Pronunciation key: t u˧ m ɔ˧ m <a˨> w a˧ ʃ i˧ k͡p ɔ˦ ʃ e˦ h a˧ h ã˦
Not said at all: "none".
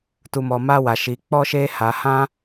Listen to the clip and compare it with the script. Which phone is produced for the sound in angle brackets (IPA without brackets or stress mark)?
a˦